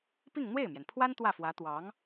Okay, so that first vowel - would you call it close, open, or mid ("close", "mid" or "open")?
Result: close